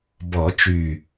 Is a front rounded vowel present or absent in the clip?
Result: present